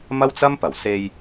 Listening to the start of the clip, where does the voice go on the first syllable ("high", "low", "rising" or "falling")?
high